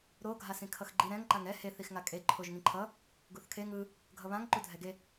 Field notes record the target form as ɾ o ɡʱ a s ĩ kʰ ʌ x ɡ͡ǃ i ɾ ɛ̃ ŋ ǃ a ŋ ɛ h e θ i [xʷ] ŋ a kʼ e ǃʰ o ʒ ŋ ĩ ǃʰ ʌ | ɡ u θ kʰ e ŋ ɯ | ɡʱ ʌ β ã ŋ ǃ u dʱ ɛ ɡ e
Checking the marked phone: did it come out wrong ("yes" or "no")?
yes